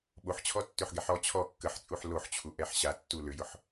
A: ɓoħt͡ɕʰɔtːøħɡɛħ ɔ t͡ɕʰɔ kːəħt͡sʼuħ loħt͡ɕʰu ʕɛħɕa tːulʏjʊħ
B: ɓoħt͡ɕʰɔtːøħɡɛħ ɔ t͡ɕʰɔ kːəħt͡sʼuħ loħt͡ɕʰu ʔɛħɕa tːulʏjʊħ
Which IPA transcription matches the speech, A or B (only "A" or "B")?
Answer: B